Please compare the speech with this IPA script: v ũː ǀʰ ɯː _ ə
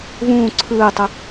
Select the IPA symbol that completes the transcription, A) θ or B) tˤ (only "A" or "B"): B